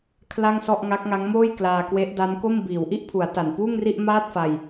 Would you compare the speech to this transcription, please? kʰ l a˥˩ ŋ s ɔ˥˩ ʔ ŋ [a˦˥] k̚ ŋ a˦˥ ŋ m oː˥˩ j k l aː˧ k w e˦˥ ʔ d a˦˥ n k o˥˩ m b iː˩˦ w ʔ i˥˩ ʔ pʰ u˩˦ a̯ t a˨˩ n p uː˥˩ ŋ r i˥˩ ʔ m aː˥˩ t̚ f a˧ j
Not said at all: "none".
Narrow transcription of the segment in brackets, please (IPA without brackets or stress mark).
a˦˥